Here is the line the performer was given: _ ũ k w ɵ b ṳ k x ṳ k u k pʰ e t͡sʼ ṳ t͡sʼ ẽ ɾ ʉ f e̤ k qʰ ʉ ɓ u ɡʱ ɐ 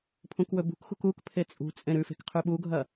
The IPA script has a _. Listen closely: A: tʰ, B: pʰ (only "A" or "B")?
B